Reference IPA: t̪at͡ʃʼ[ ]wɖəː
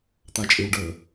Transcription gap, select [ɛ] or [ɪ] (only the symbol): ɪ